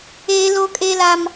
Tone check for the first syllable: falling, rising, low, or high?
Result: high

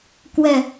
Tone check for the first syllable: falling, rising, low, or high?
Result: low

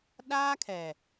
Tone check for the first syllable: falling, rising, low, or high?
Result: high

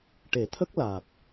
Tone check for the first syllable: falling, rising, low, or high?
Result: low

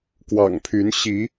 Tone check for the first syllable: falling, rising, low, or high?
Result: low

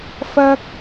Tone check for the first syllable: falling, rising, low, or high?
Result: high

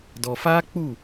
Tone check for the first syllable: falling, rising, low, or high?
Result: low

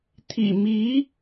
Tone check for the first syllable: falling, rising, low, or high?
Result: low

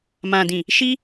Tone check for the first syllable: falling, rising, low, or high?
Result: low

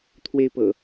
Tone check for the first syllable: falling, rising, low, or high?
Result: high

